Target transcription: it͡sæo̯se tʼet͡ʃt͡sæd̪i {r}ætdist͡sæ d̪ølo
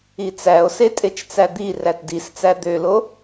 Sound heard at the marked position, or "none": r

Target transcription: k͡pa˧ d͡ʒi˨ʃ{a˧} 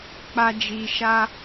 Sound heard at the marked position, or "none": a˧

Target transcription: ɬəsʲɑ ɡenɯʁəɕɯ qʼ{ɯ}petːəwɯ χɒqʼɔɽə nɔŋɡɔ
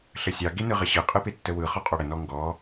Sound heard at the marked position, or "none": ɯ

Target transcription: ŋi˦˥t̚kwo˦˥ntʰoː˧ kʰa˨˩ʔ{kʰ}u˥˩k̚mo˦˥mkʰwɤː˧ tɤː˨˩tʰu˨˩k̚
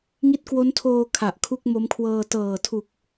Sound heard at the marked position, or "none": kʰ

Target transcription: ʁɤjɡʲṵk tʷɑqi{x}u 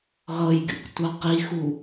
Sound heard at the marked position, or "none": x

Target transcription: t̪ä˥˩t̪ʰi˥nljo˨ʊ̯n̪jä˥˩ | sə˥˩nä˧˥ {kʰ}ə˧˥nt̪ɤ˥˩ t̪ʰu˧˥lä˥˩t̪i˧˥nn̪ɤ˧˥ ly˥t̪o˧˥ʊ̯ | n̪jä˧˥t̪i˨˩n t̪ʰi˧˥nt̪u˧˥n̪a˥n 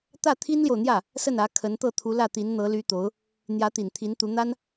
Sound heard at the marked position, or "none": kʰ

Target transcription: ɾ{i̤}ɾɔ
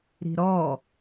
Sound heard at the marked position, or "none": i̤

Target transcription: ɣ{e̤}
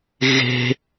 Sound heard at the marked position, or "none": e̤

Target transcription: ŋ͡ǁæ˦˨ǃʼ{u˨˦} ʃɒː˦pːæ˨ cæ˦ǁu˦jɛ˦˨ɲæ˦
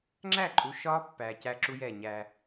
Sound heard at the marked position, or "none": u˨˦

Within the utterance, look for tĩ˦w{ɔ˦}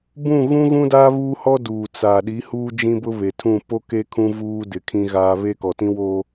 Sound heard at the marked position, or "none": o˦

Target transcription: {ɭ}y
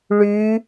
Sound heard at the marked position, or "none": ɭ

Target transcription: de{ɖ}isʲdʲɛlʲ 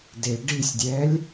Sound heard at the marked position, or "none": ɖ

